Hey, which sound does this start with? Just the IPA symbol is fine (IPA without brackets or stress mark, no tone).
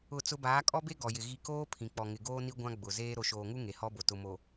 ʊ